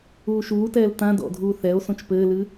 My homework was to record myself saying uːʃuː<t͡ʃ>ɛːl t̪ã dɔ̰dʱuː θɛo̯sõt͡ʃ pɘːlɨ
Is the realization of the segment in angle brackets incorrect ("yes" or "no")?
yes